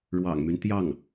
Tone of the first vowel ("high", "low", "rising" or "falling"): low